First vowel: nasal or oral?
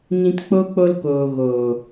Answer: nasal